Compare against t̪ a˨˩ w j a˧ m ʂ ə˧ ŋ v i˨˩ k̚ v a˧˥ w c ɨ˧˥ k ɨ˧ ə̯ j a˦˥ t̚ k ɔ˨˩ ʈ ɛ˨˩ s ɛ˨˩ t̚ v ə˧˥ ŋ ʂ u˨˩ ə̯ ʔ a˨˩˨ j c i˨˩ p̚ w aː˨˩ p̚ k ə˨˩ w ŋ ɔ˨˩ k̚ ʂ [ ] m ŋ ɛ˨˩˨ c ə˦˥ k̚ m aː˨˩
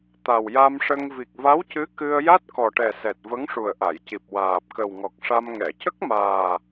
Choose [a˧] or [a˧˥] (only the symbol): a˧